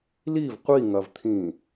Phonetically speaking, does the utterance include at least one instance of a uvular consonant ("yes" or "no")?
yes